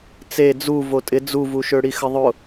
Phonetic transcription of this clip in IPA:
t͡s e d͡z u v o tʼ ɪ d͡z u v u ʃ ø ɽ i x ə ðˤ ʊ

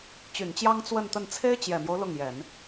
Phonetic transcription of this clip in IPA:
t͡ɕ y˨˩ n t͡ɕ j ɑ˥ ŋ t͡s w ə˥˧ n t̪ ə˥˩ n t͡sʰ e˥ ɪ̯ t͡ɕ j ɛ˨˩ m j o˦ ʊ̯ l ʊ˥˩ ŋ j ɛ˨˩˦ n

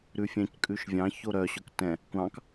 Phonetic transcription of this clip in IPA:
ɾ ʉ fʲ æ̃ c kʼ ʉ ʃ vʲ ɑ̃ ç o ɾ œ ɕ ɵ k t ɛ̃ | kʷ ɑ̃ k

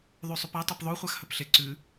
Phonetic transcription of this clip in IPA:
ðˤ ʉ sˤ ʉ p a tˤ ɨ p ðˤ o χʷ a x h ɵ p ɬ e ǀ ʉ

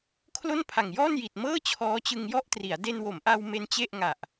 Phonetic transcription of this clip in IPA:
kʰ l o˥˩ n pʰ a˨˩ ŋ j ɔː˥˩ n j i˨˩ t̚ m ɤː˥˩ t͡ɕʰ ɔː˦˥ t͡ɕ ɯ˧ ŋ j ɔ˥˩ ʔ t r i˩˦ a̯ d e˧ n w o˩˦ m ʔ a˧ w m e˦˥ n t͡ɕ e˥˩ ʔ ŋ a˨˩ ʔ

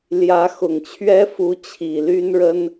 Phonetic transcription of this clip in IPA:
l j ä˧˥ x ʊ˨˩ ŋ t͡ɕʰ ɥ ɛ˥ f u˧˥ t͡ɕʰ i˨˩ l y˥ n ɻ ə˥ n

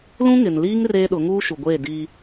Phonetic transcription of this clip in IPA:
l ũ˦ ŋ ɪ˨ n l iː˦ ŋ r eː˦ ɗ ʊ˨˦ ŋ uː˦ ʃ u˨ ɡʷ eː˦˨ d iː˦

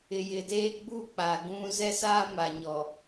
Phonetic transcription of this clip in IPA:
ɪ˨ j ɪ˨ d eː˦ ɡ͡b u˦˨ k͡p a˨ ɡ ũ˦ z ɛ˦ s aː˦ m a˨ ɲ ɔ˨

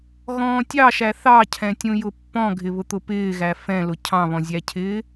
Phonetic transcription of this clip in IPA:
ɣ ɔ̃ː tʲ ɑ ʃ æ θ ɑ cʰ ɛ̃ tʲ ũ j ʊ pː ɔ̃ ɡʱ ɪ β ʊ t̪ ʊ p ɪː ɣ æ f ɛ̃ l ʊ cʰ ɑ̃ β ɔ̃ zʲ æ cʰ ɪː

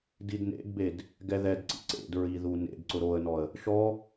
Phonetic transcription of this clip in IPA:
d i d n ḛ d b e d | ɡ ɛ ð ɛ d ǀ ḭ ǀ ḛ d ɹ i ð u n ḛ d ǀ ʊ ɾ o ə̯ n ɔ ə̯ | ʃ ɔ

